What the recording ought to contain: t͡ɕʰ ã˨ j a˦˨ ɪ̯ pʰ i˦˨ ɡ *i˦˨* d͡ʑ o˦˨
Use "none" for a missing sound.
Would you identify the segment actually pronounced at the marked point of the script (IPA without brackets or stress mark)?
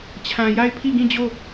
ĩ˦˨